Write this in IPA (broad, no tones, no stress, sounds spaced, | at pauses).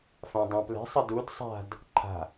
f ã dˤ ã p l ɛ̤ sˤ ə d u d sˤ a̤ d | ǃʰ a̤